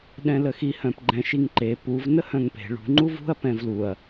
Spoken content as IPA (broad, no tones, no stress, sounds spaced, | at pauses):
ɗ ɛ̃ l ə x i h œ̃ p ɡ͡ǃ ɛ̃ ʃ i ŋ ǃ e p u v n ə h œ̃ ŋ p e̤ ɭ ṳ ŋ͡ǃ u v ṳ ɐ̯ p ɛ̃ v l u ɐ̯